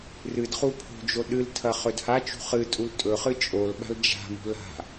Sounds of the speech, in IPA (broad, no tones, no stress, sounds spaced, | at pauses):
r ɨ d χ u pʰ o̤ d͡ʒ o ɗ ɨ l tʰ ɐ χ ɵ d h a t͡ʃ ṳ χ ɨ tʼ u l tʼ ɵ χ ɨ t͡ʃʼ o l ɓ a̤ l d͡ʒ a̤ m ṳ l a̤